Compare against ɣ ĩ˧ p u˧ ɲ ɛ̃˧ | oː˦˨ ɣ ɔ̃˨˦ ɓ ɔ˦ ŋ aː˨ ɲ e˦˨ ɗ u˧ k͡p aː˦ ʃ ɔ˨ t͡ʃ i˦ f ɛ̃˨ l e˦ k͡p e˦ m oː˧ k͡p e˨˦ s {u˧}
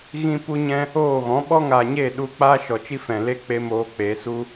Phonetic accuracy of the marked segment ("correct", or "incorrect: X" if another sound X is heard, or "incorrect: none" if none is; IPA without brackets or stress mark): incorrect: u˦